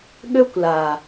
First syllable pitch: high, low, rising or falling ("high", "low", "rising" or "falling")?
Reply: high